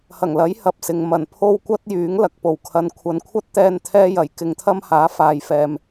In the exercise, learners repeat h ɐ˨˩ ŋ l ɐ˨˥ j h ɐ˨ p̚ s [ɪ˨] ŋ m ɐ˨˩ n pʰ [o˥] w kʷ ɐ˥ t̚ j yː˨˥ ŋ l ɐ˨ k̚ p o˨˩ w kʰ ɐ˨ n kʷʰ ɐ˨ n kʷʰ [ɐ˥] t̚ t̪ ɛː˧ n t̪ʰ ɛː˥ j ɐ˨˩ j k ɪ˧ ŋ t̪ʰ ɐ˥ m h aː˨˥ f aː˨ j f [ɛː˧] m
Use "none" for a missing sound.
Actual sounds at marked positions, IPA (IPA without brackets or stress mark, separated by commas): ɪ˨, o˥, ɐ˥, ɛː˨